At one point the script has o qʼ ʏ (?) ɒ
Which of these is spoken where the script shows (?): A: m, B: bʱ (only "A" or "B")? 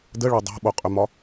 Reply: A